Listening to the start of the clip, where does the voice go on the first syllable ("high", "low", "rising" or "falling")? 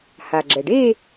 low